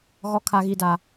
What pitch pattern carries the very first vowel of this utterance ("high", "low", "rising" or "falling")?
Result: high